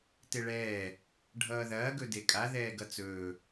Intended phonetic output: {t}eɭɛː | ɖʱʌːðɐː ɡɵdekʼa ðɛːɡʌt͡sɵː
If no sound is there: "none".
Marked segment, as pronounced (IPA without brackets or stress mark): t